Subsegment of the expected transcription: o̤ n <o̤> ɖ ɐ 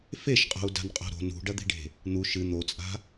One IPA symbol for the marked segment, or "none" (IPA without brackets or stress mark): ṳ